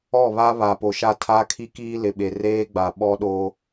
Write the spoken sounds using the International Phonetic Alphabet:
ɔ˦˨ β a˦ β a˨ p o˨ ʃ a˦˨ tʰ a˦ kʰ i˦ k iː˦ l ɪ˨ ɓ e˨ r eː˦ ɡ͡b a˨ ɓ ɔ˦ ɗ o˦

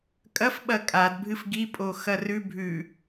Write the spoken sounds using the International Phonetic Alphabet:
kʼ ɐ f ɓ ɐ kʼ a d bʱ ɨ f ɡ i pʼ o x ɐ r ʉ bʱ ʉ

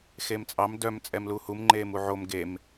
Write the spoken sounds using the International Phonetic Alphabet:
x e m t͡sʼ ɑ m d œ m t͡sʼ ɛ m l u h u m ŋ͡ǃ eː m u ʕ o m ɡ e m

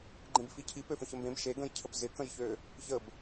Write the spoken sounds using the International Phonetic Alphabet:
ɡ͡ǃ ẽ b f i cʰ i p ø f ə̃ ç ə m b ẽ b ʃ e ɡ ə̃ j cʰ ə p z ɪ k ə̃ j ç ø | ç ə b

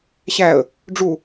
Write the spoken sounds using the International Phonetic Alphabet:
ɕ æ ə̯ | ɖ͡ʐ u

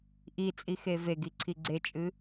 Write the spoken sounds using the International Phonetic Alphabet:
ʔ i t͡sʼ i x e v e ɡ i ǀʰ i ɡ͡ǀ e t͡ʃʼ ɨ

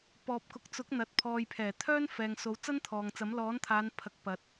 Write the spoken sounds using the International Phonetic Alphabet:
p ɔː˨ p̚ k ʊ˨ k̚ t͡s ʊ˨˥ k̚ n̪ ɐ˨ t̚ pʰ ɔː˨ j pʰ ɛː˨˩ t̪ʰ œː˥ n f ɛː˨ ŋ s o˨˧ w t͡s ɐ˥ n t̪ʰ ɔː˨ ŋ t͡s ɐ˨˥ m l ɔː˨˥ n t̪ʰ aː˨˧ n pʰ ɐ˨˥ k̚ p ɐ˨ t̚

